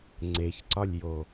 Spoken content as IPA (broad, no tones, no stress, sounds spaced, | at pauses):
ŋ͡ǀ e ç ǀ ɒ lʲ j o